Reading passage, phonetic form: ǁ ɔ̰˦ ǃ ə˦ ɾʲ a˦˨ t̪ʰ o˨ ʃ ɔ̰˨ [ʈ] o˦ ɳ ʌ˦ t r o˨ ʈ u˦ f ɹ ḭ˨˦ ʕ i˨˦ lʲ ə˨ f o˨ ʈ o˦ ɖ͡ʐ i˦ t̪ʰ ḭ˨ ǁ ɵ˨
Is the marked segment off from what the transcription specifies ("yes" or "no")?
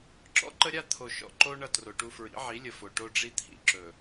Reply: yes